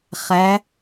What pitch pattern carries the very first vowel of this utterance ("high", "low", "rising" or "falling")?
rising